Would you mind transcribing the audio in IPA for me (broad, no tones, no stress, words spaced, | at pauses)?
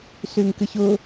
syŋkɨçʊ